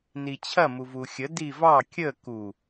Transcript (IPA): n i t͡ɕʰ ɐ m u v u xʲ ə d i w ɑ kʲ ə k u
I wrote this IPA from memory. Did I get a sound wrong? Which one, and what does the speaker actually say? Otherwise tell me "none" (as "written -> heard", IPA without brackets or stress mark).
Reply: w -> v